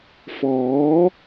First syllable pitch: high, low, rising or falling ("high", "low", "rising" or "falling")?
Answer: rising